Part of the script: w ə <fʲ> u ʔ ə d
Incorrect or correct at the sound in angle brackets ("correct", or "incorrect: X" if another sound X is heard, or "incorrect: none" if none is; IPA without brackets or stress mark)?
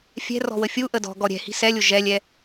correct